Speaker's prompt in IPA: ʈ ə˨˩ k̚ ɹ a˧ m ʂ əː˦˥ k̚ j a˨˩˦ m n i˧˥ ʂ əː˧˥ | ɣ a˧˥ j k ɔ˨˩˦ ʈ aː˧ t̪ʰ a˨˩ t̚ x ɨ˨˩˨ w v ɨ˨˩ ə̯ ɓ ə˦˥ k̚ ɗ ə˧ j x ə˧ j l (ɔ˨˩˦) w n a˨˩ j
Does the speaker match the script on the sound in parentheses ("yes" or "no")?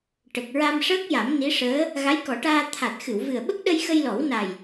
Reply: yes